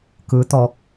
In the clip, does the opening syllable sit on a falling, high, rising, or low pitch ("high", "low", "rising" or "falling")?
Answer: rising